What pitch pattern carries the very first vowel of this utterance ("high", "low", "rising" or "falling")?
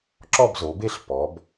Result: falling